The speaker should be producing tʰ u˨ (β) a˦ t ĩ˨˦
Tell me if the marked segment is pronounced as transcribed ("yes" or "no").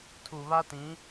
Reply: yes